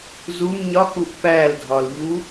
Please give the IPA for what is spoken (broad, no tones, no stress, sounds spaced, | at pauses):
z u m ɲ ɒ k u ʔ p æ l dʱ ɒ l ʎ u